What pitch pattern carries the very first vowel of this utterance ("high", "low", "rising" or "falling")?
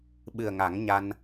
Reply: low